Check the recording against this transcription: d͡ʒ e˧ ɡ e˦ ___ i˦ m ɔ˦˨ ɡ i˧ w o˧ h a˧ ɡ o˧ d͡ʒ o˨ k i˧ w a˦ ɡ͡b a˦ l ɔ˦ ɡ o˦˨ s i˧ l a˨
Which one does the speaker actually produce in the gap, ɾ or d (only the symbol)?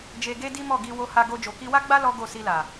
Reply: d